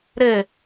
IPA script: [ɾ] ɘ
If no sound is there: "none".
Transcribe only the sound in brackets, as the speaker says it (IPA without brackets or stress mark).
ɾ